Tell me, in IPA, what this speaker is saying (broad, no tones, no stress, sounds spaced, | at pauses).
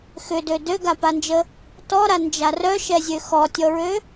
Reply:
x ʏ d ø d ø ɡ a p a n d͡ʒ ə | t ɔ ɾ a n d͡ʒ a r œ ʃ ɛ zʲ ø x ɔ tʲ ɔ ɹ ø